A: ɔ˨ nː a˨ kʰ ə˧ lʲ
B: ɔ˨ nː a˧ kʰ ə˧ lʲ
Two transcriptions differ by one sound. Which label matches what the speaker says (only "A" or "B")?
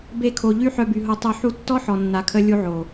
A